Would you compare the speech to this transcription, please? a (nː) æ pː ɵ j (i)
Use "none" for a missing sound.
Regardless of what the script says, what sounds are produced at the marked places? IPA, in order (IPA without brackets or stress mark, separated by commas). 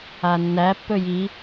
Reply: nː, i